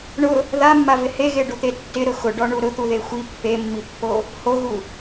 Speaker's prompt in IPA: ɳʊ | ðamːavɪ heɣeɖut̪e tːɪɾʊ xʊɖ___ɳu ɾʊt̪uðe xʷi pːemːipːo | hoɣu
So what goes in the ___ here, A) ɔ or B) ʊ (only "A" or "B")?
A